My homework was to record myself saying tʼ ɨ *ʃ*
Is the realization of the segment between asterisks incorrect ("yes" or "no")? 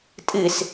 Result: yes